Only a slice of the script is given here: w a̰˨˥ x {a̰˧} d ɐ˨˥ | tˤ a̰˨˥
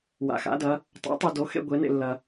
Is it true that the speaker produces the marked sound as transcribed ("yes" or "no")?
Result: no